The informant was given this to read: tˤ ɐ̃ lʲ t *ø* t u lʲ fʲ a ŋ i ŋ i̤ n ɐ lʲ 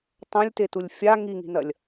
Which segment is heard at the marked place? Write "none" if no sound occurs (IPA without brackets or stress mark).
e